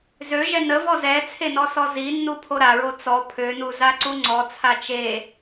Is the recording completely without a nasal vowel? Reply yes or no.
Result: yes